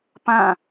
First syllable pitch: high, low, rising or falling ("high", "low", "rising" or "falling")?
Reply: falling